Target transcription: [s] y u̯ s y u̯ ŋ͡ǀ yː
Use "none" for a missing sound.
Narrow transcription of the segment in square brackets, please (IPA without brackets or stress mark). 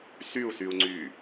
s